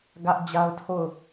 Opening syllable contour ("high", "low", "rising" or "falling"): high